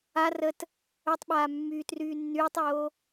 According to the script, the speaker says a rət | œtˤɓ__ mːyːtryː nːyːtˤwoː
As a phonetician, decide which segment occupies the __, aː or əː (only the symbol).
aː